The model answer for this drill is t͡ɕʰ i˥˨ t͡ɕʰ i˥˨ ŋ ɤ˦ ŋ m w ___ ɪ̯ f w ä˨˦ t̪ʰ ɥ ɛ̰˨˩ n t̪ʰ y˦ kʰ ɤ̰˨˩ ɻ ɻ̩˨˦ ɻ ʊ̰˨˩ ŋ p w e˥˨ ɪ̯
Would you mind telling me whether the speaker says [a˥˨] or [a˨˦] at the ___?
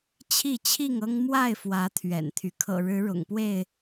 a˥˨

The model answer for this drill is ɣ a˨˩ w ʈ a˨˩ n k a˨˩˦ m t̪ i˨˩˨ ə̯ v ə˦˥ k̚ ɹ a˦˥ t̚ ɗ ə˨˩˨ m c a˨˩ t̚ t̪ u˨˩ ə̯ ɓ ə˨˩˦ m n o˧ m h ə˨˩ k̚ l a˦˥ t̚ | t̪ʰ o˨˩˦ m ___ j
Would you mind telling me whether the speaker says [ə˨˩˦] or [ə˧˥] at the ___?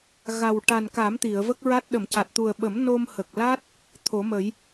ə˨˩˦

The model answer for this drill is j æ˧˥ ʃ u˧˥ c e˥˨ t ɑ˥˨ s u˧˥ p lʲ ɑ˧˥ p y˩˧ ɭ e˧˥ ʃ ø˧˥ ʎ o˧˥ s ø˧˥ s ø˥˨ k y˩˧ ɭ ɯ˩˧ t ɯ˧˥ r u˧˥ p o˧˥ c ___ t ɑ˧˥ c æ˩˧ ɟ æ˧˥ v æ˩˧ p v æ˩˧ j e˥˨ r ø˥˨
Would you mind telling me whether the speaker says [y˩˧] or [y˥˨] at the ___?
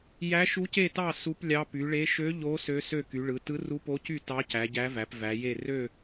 y˥˨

